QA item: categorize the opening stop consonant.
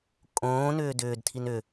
ejective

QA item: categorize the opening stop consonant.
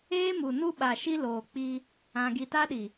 implosive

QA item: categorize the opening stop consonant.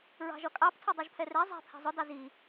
ejective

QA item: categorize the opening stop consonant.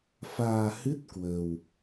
plain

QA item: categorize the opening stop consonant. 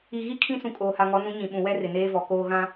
aspirated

